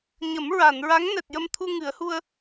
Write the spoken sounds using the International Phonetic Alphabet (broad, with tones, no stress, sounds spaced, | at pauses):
ɲ ə˨˩˦ m ɹ a˨˩˨ n ɹ a˧˥ ŋ n ɛ˨˩ t̚ j ə˧ m t̪ʰ u˧ ŋ ɨ˨˩˦ ə̯ h u˧ ə̯